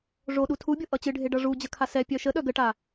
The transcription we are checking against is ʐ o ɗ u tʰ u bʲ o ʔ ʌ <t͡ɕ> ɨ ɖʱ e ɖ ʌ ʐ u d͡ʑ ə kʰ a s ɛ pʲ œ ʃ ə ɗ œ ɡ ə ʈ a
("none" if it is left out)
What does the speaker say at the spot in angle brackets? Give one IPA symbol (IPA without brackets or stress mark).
t͡ɕ